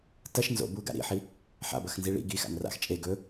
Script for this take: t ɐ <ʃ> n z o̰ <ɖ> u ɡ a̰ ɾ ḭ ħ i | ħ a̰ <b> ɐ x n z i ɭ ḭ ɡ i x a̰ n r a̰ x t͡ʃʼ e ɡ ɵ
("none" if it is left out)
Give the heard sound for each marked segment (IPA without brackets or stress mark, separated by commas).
ʃ, b, b